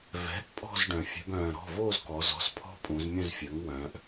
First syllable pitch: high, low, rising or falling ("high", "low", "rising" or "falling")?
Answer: rising